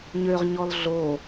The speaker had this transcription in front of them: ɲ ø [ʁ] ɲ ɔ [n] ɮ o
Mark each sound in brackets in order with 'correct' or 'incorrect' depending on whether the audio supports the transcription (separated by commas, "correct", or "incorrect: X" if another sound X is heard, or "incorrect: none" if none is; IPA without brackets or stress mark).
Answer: correct, incorrect: l